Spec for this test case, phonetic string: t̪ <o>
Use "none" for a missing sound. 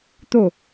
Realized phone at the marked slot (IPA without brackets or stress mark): o